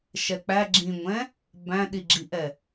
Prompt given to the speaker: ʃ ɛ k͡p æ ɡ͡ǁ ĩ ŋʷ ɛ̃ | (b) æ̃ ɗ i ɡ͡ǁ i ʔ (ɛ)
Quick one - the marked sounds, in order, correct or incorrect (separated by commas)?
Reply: correct, correct